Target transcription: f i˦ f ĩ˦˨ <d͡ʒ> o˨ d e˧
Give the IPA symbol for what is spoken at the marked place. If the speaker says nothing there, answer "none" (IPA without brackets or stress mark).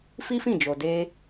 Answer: d͡ʒ